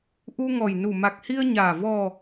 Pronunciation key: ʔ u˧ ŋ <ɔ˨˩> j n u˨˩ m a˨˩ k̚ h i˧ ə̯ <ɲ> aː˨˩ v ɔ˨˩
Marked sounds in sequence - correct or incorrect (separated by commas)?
correct, correct